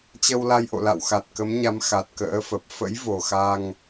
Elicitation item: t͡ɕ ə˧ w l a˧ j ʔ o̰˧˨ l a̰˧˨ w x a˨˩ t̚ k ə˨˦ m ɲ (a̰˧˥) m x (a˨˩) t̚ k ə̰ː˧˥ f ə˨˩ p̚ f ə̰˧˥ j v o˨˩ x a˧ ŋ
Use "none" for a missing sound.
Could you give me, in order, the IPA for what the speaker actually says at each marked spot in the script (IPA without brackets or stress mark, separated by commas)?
a˨˦, a˨˩